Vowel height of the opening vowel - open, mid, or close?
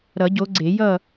mid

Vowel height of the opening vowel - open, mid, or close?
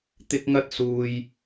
close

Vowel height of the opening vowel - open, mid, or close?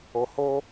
mid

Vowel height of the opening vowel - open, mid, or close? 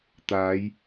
open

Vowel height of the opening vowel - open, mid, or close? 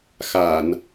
open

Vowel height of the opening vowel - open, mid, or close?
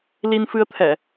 close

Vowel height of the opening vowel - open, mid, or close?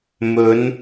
mid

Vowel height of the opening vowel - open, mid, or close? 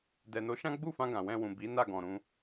mid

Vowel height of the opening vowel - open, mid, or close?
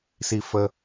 close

